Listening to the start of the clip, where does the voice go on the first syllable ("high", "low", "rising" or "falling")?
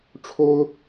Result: high